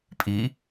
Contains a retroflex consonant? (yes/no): no